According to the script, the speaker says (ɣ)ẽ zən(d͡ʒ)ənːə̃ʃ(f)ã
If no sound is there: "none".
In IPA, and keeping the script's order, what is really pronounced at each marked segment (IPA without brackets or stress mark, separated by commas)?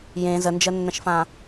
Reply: j, d͡ʒ, f